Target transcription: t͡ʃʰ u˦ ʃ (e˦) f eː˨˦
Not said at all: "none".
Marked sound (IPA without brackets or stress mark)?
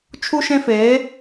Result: ẽ˦